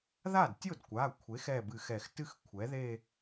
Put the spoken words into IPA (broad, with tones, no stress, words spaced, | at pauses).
ða˥˩dtʲo˥˩dkʷa˩˧˩ kʷʰe˩˥x ɛ˧˩bɨ˨˩˦xɛ˨˩˦xtɨ˥˩x kʷʰɛ˩˥ðe˥˧